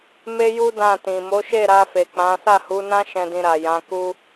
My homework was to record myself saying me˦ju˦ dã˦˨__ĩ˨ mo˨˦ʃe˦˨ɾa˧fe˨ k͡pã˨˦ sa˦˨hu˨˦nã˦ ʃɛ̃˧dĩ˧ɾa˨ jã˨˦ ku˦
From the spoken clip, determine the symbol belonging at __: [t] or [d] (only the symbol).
t